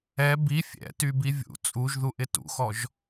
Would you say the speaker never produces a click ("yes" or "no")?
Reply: yes